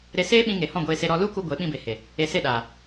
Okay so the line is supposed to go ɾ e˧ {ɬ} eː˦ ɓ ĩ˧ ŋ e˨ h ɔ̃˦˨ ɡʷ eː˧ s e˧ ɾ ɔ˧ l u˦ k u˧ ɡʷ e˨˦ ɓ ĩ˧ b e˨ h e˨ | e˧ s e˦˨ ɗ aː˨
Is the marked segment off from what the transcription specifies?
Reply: yes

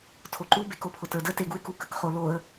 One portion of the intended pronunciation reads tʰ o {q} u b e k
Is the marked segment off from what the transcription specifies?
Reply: yes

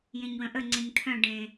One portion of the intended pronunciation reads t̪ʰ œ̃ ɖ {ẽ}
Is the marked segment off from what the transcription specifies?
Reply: no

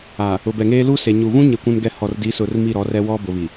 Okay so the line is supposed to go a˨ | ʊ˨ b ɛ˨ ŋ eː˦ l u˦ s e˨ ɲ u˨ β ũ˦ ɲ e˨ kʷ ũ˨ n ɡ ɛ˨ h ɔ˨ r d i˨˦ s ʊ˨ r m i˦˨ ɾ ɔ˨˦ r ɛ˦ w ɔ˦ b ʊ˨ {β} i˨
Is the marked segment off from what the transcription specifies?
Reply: no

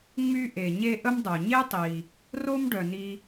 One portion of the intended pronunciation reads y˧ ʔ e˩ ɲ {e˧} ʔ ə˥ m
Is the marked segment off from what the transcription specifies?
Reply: no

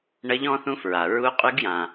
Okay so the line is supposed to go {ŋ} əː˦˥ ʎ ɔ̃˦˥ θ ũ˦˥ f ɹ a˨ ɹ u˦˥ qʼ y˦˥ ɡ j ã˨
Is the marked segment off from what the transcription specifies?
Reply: yes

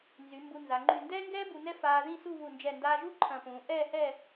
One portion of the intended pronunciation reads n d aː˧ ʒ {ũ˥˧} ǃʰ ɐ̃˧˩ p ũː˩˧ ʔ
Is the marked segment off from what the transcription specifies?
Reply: yes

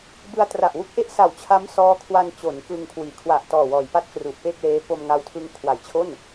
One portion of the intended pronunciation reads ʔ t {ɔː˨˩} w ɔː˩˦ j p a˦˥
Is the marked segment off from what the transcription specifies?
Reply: no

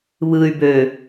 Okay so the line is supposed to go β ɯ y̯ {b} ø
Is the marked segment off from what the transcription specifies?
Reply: no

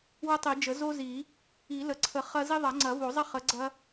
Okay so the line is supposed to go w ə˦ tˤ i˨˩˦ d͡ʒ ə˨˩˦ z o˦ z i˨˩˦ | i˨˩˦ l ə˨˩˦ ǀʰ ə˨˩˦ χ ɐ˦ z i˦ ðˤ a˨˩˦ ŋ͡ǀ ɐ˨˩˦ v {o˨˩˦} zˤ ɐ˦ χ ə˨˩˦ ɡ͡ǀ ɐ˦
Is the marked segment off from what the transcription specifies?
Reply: no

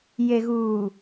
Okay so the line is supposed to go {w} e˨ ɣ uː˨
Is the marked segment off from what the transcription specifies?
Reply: yes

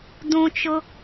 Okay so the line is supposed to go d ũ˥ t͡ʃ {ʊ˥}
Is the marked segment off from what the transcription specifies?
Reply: no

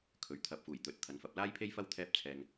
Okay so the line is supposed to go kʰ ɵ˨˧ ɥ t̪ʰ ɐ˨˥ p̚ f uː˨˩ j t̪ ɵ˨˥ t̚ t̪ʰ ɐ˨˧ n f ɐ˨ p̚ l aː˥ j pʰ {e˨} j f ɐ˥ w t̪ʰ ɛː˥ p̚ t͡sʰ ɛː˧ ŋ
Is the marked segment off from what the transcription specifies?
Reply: yes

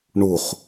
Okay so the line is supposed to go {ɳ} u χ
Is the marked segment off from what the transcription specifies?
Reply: no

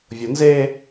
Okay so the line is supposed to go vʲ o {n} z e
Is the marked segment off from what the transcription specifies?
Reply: no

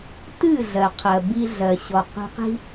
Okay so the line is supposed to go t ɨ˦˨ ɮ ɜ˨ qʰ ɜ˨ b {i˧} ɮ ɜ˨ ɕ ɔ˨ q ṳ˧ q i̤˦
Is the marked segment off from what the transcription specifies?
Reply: no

